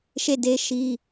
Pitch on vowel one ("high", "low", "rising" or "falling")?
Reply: falling